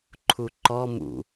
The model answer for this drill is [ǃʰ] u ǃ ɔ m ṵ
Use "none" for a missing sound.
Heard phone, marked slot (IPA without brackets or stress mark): ǃʰ